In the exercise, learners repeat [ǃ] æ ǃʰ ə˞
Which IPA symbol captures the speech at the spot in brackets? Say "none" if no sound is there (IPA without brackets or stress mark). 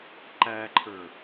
ǃ